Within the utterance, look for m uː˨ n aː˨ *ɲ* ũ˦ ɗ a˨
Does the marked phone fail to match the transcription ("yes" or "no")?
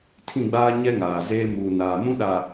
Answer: yes